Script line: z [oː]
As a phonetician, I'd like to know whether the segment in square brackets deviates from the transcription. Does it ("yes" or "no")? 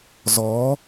yes